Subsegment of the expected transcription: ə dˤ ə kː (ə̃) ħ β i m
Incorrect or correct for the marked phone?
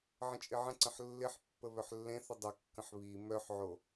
correct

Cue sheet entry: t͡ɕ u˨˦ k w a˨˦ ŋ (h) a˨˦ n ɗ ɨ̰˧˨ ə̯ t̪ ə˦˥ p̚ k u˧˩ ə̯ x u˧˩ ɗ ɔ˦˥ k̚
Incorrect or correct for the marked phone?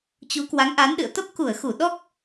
incorrect: ʔ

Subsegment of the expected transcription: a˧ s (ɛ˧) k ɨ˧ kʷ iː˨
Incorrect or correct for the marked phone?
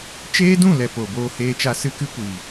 incorrect: ɨ˧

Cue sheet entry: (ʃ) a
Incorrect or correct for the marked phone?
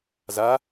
incorrect: z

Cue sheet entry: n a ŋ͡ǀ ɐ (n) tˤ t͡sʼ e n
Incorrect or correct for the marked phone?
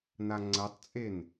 incorrect: none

